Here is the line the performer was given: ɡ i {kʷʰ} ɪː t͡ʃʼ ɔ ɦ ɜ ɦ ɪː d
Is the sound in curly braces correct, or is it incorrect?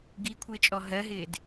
correct